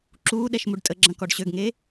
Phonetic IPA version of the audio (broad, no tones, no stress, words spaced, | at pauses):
ǁuː ɗɛʃmuɖtʼəɡ͡ǁɐ̃ kɔɖɕøɡŋe